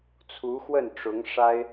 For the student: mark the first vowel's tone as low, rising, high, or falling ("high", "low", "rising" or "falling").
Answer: rising